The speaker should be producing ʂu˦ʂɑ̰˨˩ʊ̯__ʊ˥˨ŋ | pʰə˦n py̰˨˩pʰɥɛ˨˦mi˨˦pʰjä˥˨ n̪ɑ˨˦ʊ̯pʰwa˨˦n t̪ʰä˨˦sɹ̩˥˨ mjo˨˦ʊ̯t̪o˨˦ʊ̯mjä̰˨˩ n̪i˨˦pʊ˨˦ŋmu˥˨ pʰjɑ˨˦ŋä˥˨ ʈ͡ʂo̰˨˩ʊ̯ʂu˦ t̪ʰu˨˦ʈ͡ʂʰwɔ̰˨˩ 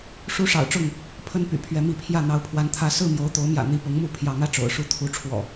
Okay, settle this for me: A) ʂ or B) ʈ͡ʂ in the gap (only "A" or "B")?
B